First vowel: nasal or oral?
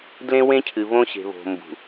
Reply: nasal